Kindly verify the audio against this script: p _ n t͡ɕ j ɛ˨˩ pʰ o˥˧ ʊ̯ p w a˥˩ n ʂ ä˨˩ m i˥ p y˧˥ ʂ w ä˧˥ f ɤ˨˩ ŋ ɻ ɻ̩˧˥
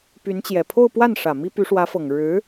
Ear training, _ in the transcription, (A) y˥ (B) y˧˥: B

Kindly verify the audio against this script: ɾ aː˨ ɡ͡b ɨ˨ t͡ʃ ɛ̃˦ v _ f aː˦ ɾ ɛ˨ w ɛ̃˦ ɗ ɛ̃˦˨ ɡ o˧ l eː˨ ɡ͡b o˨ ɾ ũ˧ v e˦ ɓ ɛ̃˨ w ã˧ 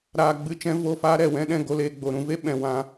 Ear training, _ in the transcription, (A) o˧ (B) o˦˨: B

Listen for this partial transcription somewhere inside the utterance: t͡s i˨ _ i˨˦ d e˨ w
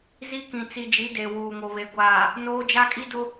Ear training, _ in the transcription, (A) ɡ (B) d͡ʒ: B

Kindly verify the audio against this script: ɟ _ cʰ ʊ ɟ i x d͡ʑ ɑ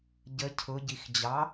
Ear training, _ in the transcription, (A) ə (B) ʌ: A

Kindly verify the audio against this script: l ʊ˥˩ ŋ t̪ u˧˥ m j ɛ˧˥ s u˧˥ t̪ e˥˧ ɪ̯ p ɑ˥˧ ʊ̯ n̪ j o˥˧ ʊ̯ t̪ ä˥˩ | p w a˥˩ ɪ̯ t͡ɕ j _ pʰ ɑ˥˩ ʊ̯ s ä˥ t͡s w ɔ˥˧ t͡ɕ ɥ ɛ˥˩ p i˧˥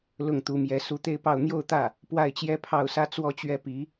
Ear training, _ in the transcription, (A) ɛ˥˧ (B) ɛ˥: B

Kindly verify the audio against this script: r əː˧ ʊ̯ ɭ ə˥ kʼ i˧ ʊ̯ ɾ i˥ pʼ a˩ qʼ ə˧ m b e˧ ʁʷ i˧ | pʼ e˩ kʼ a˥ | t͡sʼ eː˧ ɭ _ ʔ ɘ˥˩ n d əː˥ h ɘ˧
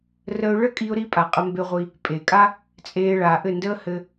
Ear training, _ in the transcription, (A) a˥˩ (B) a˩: B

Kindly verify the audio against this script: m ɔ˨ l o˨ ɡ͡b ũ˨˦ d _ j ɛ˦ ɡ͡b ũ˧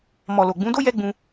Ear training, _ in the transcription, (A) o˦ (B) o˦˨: A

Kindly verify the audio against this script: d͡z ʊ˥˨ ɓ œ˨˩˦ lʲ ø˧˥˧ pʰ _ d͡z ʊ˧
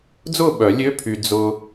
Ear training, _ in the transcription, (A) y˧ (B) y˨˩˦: A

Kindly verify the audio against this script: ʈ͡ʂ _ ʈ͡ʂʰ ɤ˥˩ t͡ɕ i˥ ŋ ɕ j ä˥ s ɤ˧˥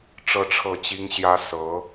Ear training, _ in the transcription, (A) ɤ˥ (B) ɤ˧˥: A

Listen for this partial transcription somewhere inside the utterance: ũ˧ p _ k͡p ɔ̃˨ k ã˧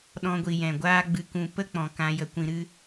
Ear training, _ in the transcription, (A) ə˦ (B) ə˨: A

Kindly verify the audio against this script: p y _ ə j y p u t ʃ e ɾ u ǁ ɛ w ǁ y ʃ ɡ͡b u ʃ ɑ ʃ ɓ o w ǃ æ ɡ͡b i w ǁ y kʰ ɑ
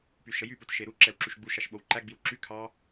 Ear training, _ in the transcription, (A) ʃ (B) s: A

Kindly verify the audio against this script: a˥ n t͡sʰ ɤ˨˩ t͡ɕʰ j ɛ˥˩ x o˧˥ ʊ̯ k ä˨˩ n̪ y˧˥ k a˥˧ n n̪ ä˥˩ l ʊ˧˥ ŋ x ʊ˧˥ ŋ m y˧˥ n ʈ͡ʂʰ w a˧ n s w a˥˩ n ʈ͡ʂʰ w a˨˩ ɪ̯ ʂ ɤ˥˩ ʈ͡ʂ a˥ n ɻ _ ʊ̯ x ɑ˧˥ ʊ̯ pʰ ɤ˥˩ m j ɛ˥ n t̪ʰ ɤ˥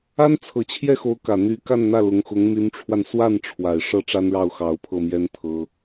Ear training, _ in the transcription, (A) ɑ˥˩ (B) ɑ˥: A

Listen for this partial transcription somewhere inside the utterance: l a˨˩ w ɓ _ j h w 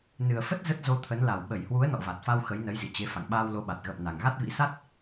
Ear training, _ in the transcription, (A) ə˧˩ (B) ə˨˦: A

